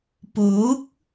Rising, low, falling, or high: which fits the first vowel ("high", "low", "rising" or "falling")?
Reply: rising